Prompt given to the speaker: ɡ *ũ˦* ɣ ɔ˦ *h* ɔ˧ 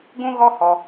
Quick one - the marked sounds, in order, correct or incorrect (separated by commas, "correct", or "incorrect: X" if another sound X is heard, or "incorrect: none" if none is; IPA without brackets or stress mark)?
correct, correct